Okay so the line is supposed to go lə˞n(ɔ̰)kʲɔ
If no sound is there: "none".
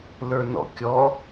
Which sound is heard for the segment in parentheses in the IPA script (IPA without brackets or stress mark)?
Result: ɔ̰